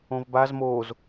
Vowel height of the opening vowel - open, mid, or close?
mid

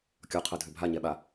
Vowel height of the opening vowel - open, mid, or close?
mid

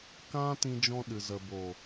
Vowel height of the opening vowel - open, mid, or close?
open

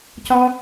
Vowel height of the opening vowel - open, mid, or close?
open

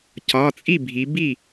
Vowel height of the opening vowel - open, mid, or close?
open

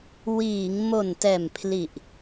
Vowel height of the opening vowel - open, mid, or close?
close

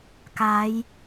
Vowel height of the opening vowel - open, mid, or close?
open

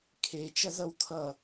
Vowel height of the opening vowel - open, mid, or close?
mid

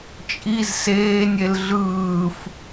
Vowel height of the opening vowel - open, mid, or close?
close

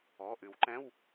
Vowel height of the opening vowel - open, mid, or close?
mid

